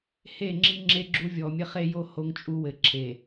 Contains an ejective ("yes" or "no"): yes